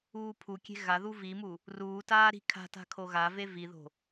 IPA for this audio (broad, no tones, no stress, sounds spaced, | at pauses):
uː pʰ u kʲ e̤ ɣ a ð u v i m u | r uː t aː ɾ i̤ kʰ a̤ t a̤ kʰ o ɣ a v e v i ð o̤